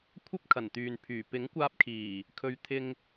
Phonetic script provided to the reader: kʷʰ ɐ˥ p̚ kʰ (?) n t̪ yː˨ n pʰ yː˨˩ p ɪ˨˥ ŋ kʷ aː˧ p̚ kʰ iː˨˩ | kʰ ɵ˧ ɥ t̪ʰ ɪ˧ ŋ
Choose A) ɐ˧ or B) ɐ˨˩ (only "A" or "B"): B